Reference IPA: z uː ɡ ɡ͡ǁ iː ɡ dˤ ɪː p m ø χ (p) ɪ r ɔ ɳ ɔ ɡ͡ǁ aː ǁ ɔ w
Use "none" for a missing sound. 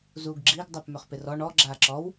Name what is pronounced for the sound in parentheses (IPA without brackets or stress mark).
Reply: p